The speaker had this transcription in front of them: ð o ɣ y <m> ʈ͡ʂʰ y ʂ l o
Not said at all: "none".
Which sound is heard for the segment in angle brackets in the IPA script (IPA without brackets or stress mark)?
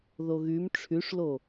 m